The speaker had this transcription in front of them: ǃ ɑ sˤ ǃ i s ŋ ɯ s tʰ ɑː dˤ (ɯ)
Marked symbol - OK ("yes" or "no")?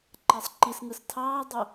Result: no